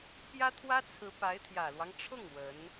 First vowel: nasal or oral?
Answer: oral